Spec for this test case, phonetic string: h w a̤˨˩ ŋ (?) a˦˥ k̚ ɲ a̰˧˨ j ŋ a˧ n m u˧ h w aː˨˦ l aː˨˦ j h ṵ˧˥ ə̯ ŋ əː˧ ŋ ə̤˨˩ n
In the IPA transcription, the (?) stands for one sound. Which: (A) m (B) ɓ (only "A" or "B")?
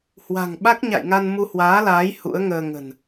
B